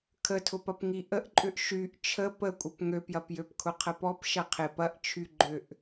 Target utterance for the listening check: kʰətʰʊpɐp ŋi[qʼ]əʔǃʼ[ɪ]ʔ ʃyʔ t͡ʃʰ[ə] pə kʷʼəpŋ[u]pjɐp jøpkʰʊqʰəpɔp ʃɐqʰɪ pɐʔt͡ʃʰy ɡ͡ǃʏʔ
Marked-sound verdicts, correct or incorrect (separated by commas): incorrect, incorrect, correct, incorrect